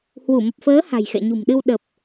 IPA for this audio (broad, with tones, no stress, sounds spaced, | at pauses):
h w u˧˩ m ə˨˩ p̚ f əː˨˦ h a̤˨˩ j x ɛ̰˧˨ ɲ ṳ˨˩ m ɗ ɨ˧ w ɗ ə˨˩ p̚